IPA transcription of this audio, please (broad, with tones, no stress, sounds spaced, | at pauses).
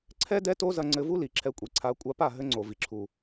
ǀʰ ɛ˦ d ɛ˦ t o˦ z ɐ˧ ŋ͡ǀ ɘ˧ v u˦ l i˨ ǁʰ ɛ˧ kʷʼ i˨ ǀʰ a˨˦ kʷʼ a˧ p a˦˨ ɦ ɘ˦ ŋ͡ǀ o˨ v i˨ ǁʰ u˨